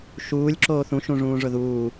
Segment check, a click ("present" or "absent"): present